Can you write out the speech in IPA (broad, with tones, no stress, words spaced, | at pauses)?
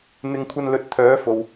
n̪ɪ˧ŋkʷʰɐ˧nlɵ˨˥t̚ t̪ʰœː˨˥fo˨w